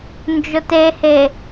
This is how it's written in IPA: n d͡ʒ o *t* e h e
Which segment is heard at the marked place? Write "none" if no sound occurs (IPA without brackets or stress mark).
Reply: t